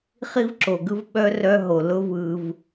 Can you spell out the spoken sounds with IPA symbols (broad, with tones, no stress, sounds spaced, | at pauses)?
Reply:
χ i˦ v ǁ o˨ ɡ ɯ˦ v ɓ œ˦ r œ˦ ɦ o˨ l ʊ˦ v ɯ˧ v